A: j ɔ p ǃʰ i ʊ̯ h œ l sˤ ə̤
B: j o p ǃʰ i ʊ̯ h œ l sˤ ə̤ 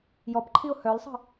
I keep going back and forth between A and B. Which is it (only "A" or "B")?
A